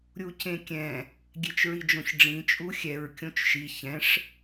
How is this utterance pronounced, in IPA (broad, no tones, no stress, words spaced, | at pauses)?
ɾʲucẽkʲɛ̃ | ɡʲet͡ʃɹid͡ʒõçɖ͡ʐĩ t͡ʃʼuxʲɛɹ kʲõt͡ʃʃi çɛ̃ʂ